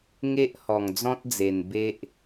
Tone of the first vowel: high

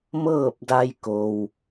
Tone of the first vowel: falling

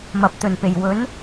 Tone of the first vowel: low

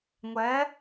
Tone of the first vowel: rising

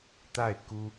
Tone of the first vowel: falling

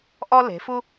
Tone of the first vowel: high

